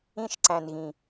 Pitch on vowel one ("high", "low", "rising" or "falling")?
high